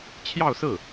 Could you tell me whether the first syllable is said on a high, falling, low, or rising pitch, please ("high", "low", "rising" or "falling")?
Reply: falling